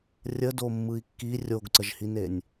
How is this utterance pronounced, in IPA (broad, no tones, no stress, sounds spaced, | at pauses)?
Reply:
rʲ ə d o mː ɯ i̯ kː i rʲ o ɡ ǀ ə ʒ h i n e nʲ